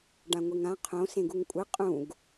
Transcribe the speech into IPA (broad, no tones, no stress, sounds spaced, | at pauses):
ɖ ã ŋʷ e ŋ ã qʰ õ s ẽ ɡ u ŋ kʷʼ ɨ qʼ ũ ɡ